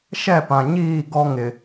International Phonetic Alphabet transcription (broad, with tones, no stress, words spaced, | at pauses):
ʃɛ˦˨pã˨ɲiː˦˨ ɡɔ˦ŋɪ˨